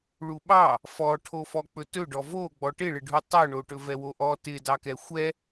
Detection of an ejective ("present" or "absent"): absent